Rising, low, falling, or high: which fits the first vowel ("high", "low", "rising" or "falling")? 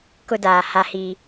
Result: high